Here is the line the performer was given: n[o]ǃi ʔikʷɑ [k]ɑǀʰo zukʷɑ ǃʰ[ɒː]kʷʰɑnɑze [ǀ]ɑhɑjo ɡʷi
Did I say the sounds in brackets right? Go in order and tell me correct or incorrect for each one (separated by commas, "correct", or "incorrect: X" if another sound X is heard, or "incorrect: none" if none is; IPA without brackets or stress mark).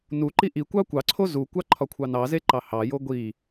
incorrect: u, incorrect: kʷ, incorrect: ɒ, incorrect: ǃ